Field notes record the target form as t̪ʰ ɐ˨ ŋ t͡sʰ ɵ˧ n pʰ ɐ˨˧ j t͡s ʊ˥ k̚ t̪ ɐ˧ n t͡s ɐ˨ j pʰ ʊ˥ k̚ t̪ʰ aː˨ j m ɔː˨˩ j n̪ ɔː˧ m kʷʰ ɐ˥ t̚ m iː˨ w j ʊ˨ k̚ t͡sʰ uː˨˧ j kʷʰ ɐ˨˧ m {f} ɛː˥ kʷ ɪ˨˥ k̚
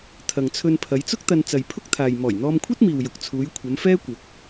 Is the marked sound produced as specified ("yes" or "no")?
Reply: yes